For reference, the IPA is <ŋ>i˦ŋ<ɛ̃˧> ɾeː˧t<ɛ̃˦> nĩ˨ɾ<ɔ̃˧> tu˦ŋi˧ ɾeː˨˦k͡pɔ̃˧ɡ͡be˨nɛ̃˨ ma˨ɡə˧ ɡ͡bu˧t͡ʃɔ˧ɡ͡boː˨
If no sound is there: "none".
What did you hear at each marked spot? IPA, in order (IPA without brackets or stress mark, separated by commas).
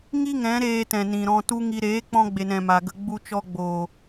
ŋ, ɛ̃˨˦, ɛ̃˨, ɔ̃˧